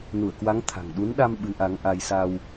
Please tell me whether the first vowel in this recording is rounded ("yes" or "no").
yes